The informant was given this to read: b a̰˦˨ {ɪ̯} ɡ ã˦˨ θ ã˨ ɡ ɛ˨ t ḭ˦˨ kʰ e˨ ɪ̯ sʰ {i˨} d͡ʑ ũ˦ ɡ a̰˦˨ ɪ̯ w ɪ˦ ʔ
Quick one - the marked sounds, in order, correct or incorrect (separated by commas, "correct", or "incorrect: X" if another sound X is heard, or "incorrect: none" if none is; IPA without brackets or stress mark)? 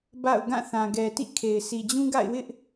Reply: incorrect: ʊ̯, correct